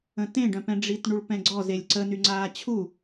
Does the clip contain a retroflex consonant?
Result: yes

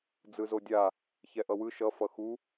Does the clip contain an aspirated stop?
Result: no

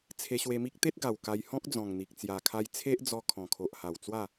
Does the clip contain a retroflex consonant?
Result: no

